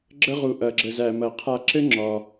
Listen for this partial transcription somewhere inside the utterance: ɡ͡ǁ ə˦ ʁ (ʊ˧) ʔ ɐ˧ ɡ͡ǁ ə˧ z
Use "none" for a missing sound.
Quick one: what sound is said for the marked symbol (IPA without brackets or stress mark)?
u˧